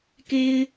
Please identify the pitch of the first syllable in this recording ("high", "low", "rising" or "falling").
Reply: high